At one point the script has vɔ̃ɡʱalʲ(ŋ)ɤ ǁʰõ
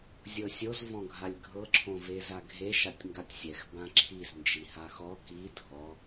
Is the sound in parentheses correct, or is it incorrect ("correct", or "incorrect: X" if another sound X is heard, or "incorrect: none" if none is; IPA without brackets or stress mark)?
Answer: incorrect: ɡʱ